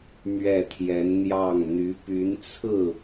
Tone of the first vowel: falling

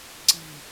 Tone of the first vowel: low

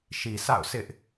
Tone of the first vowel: low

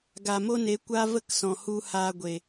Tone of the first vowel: low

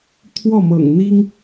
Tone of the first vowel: falling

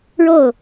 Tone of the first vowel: falling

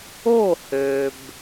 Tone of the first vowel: falling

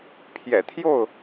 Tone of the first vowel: low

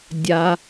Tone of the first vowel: low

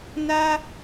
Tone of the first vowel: high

